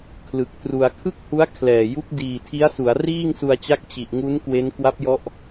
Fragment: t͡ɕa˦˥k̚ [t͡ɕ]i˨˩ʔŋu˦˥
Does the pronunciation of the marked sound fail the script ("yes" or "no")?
no